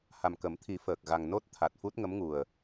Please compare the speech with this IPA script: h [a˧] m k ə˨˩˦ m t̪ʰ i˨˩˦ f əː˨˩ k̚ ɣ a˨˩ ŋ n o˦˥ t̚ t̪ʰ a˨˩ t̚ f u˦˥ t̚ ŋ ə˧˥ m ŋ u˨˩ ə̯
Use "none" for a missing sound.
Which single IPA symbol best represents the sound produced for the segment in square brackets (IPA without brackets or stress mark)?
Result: a˨˩